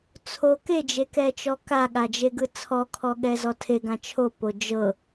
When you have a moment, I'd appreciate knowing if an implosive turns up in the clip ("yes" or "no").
yes